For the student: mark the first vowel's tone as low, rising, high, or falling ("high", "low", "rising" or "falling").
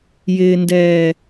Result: low